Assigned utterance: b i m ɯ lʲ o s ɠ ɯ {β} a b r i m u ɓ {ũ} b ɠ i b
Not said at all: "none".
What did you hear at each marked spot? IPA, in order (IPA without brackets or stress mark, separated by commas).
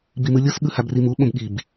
h, õ